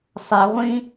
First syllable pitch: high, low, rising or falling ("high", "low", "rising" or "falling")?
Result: low